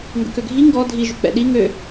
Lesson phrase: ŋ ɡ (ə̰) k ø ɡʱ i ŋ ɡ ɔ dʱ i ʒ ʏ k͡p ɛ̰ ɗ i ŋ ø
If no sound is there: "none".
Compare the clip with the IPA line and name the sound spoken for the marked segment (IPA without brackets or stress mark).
ə̰